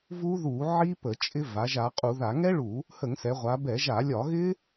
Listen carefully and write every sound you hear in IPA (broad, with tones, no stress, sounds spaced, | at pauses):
v u˦˥ ð u˧˩˧ ʕ i˦˥ p ə˧˩˧ t͡ʃʼ ɪ˦˥ v a˩˧ ʒ a˩˧ qʼ u˧˩˧ ð a˧˩˧ ŋ ɛ˦˥ ɭ u˧˩˧ | h ə˧˩˧ ŋ s ɛ˩˧ ʁʷ a˩˧ b ɛ˧˩˧ ʒ a˧˩˧ lʲ ɒ˧˩˧ ɣ ɪ˦˥